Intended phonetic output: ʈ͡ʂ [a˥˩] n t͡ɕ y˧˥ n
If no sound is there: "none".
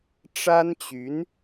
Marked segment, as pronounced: a˥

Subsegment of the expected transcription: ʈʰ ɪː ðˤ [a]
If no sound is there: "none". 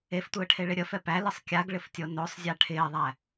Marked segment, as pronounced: æ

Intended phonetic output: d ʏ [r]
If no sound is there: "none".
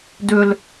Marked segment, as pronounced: l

